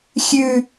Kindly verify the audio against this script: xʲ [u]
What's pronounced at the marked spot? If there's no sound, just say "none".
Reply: ʉ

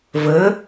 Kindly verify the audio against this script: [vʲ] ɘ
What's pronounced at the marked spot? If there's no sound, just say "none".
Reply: v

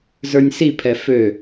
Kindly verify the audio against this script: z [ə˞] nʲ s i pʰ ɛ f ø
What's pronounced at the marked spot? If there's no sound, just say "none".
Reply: ə˞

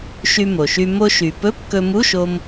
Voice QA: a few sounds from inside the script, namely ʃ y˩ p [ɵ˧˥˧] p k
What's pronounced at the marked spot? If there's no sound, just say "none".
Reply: ɵ˧˥˧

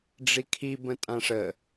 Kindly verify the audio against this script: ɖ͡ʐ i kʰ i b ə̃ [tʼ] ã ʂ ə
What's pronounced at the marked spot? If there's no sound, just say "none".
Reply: tʼ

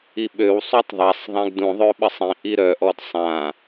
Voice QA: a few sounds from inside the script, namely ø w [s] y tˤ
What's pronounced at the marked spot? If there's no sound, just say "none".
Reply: sˤ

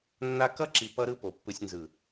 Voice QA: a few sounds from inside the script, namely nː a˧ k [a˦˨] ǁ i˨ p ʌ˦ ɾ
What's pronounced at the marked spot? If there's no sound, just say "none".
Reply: ʌ˦˨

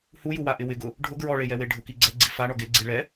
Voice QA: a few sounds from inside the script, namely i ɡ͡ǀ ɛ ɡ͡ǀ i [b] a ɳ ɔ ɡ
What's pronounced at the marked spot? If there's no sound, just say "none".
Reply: f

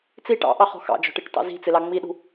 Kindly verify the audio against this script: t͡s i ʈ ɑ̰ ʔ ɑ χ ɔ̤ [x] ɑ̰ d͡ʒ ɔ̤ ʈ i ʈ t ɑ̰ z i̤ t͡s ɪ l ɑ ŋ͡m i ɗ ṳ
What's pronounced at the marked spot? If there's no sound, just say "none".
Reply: x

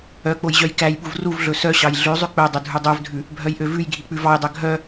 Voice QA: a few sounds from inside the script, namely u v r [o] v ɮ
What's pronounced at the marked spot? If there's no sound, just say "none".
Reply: u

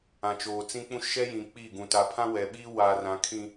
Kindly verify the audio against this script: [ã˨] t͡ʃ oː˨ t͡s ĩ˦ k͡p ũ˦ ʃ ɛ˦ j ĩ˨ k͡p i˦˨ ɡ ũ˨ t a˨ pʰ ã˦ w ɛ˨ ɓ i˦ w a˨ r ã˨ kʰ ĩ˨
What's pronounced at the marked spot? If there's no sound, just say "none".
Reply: ã˨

